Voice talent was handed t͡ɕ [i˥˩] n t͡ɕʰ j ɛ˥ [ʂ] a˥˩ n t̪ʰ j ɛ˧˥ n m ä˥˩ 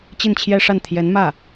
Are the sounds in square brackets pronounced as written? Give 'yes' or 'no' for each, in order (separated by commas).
yes, yes